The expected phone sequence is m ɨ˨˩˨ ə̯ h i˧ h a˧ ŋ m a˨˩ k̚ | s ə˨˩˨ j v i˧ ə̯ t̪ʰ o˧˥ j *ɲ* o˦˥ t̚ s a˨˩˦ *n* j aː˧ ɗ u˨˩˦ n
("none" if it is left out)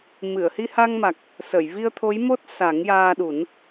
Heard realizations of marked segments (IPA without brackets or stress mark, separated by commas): m, ŋ